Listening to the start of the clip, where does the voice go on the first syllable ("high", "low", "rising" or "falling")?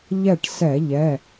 falling